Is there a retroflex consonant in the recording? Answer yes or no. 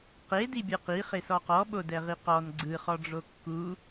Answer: yes